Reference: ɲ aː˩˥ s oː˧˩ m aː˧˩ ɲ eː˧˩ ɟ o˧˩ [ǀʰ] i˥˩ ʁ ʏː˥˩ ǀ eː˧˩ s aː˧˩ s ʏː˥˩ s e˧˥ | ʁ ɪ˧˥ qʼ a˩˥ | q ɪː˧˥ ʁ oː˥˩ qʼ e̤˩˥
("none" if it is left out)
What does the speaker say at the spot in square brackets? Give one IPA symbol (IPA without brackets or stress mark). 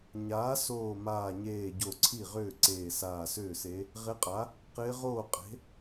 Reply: ǀʰ